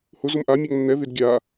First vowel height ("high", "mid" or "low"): high